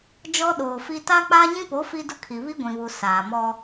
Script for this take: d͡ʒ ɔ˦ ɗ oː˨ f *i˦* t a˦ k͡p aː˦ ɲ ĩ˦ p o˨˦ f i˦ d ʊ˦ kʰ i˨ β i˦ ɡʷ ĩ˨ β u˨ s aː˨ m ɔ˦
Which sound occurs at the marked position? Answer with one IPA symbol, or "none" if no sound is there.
i˦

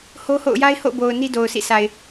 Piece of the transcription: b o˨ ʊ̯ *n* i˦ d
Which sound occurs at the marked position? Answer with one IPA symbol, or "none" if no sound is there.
n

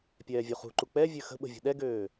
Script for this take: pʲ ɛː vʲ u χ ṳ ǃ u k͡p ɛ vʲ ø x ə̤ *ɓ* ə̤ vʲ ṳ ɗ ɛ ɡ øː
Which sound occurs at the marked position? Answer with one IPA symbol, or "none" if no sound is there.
ɓ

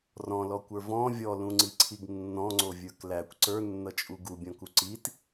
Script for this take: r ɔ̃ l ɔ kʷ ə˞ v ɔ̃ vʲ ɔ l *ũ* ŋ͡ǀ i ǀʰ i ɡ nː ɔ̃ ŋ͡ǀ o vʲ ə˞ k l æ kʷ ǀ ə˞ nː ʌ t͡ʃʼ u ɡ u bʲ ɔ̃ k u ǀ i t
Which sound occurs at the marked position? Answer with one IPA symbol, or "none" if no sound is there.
ũ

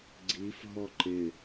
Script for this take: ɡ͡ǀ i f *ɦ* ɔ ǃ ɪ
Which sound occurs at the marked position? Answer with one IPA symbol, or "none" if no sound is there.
ɦ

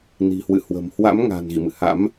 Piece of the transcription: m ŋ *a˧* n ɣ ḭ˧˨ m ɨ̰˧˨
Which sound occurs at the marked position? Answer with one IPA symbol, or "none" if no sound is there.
a̤˨˩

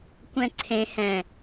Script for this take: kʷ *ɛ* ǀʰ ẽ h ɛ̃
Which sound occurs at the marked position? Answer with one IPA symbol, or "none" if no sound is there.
ɛ̃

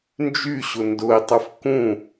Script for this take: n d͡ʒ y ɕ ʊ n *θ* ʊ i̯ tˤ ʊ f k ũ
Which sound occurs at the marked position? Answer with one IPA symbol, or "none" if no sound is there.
d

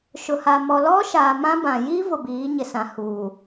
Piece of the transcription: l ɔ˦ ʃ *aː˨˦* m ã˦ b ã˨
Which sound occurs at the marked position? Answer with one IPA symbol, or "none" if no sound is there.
aː˨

